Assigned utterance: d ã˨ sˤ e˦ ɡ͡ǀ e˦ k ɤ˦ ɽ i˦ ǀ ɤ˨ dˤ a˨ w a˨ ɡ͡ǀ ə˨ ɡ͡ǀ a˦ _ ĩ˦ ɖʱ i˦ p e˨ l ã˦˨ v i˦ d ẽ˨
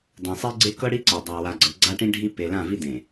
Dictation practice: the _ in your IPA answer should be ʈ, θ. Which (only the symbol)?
ʈ